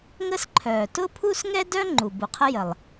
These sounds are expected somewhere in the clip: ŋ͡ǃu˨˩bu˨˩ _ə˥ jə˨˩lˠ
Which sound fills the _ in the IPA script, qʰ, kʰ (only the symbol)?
qʰ